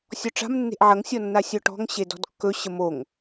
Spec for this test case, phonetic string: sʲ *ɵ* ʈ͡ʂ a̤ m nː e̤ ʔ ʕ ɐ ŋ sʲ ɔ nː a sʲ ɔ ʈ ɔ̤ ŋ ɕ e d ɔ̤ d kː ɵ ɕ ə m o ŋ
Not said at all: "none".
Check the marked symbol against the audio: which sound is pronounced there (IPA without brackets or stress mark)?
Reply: ɔ